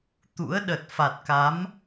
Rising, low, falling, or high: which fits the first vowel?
rising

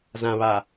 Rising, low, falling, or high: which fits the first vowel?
low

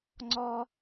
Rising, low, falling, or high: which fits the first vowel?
high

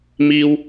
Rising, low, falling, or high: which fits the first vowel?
high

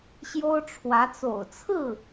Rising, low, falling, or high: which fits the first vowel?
high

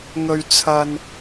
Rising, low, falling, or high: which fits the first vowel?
low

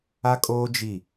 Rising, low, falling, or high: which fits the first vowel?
high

